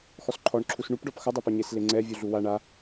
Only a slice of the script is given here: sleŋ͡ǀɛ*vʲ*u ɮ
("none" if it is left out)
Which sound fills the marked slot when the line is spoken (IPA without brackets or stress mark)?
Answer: vʲ